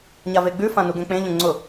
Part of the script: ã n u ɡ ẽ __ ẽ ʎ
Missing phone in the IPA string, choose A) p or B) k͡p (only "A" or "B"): B